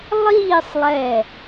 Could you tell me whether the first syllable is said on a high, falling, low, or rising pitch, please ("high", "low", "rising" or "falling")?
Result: falling